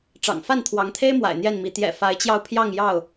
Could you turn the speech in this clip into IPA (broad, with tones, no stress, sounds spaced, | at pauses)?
ʈ͡ʂ ɑ̰˨˩ ŋ f a˥˨ n t̪ʰ w ɑ˨˦ ŋ t̪ʰ e˦ ɪ̯ m w a̰˨˩ ɪ̯ n̪ j ɛ˥˨ n m i˨˦ t̪ j ɛ̰˨˩ f a˨˦ ɪ̯ t͡ɕ j ɑ˧ ʊ̯ pʰ j ɑ˥˨ ŋ j ɑ˥˨ ʊ̯